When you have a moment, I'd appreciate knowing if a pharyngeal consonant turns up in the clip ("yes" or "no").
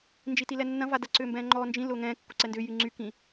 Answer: no